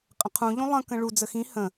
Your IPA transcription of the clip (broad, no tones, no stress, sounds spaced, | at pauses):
qʼ ə̃ qʰ ũ ʎ ũ lˠ ə̃ k ə̃ ɭ u d͡z ə x ĩ h ə̃